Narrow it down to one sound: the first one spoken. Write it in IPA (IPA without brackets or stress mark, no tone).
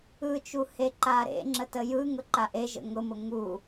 ɯ